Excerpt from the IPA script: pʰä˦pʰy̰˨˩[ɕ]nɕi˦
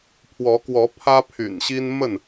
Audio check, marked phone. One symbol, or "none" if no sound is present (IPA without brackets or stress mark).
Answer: none